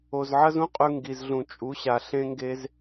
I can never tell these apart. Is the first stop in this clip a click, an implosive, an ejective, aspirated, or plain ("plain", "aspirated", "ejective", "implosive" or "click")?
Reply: ejective